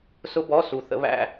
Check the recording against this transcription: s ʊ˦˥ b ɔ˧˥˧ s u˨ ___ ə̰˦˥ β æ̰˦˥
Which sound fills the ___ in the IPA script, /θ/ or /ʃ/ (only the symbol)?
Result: θ